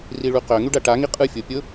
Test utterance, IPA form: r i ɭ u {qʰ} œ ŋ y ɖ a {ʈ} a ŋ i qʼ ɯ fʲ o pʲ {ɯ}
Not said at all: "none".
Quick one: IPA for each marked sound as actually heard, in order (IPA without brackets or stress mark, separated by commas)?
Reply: q, ʈ, ʊ